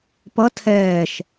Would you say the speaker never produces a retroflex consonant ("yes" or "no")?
yes